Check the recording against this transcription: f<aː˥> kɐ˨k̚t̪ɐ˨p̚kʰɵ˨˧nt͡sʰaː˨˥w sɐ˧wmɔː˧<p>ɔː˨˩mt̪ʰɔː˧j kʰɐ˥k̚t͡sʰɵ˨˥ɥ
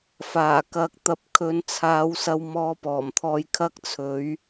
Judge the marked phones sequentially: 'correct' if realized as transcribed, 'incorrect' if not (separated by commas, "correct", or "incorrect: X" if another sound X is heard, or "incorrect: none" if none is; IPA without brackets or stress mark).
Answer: incorrect: aː˨˩, correct